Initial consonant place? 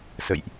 alveolar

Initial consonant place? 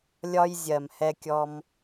alveolar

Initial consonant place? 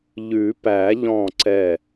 palatal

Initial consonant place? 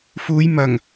labial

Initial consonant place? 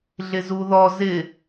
alveolar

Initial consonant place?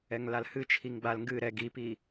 velar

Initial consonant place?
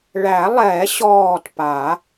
retroflex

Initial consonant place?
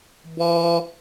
labial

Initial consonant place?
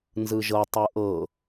alveolar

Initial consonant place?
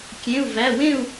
velar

